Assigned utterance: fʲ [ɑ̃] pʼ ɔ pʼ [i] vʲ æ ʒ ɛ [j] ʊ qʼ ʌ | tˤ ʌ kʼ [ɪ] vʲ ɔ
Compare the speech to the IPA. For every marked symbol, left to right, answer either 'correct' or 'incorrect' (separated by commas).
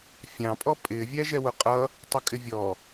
correct, incorrect, incorrect, correct